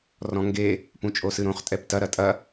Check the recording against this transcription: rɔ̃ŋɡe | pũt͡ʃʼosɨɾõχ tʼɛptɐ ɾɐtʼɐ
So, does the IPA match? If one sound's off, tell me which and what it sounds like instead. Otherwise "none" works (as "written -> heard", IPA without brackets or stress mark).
none